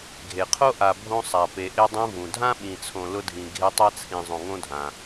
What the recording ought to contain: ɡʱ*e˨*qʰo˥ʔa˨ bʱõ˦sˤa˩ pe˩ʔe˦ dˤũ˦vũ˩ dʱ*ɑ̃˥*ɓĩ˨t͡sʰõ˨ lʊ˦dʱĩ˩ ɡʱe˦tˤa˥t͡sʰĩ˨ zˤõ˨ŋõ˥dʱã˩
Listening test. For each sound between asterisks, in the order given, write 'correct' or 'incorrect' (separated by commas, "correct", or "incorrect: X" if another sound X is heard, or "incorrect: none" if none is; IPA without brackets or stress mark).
incorrect: e˩, incorrect: ã˥